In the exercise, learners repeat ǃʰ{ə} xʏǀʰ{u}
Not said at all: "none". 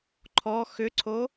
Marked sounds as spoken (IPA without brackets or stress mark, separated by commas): ɔ, o